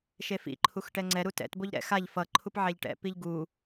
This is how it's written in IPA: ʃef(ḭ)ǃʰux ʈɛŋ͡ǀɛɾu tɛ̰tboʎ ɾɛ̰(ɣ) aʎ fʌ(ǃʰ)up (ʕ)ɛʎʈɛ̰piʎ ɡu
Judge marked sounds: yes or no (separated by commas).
yes, no, yes, yes